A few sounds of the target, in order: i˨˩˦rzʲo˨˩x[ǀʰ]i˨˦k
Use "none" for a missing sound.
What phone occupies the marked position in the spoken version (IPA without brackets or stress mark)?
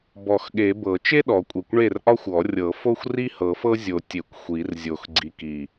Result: ɡ͡ǀ